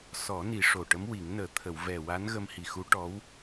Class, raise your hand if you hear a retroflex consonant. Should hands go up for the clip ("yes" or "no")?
yes